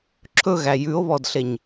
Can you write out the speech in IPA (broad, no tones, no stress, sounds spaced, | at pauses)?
ǁʰ ɵ ɣ æ j ʉ o̯ β ɔ d ɬ e ɲ